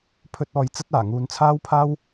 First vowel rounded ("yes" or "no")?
yes